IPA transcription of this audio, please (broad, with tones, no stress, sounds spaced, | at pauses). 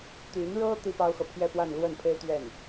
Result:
t̪ y˧˥ n ɻ ɤ˥ t̪ i˥ p ɑ˥ ʊ̯ x ɤ˨ pʰ j ɛ˥˧ p w a˥˧ n l w ə˥˩ n pʰ e˥ ɪ̯ t̪ ɥ ɛ˥˩ n